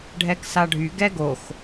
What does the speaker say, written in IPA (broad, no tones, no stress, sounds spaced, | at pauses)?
ɖʱ ɛ k s a ɖʱ y ɡ ɛ ɡ o x